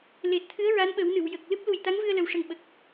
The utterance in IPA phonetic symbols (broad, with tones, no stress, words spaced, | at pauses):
le˨˩t̚t̪ʰɨ˧˥ə̯ ɹa˧˥nɓə˨˩˦wnɨ˨˩˨wjə˨˩k̚ lɨ˦˥p̚lu˨˩jt̪a˧˥ŋvɨ˧ə̯ lə˨˩wʂə˨˩ŋɓə˨˩k̚